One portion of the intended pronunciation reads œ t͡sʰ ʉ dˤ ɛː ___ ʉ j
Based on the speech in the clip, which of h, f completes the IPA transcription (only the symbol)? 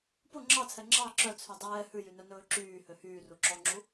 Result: h